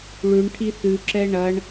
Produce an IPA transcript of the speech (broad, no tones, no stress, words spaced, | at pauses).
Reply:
ɭʉɳ ʈʰiθʉǁɛ ɳɐɳ